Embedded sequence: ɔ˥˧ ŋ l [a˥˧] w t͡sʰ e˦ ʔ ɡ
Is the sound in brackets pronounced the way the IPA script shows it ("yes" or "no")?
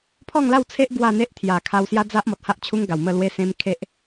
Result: yes